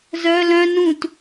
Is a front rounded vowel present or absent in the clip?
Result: present